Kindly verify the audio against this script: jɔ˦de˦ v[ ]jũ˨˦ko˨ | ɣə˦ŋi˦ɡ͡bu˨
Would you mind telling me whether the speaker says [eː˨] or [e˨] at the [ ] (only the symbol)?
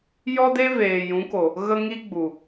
eː˨